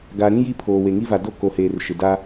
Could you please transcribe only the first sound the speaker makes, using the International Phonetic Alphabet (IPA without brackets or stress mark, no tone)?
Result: ɡ